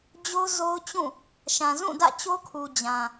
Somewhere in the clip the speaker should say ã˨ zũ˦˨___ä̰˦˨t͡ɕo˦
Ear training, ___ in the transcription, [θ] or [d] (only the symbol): d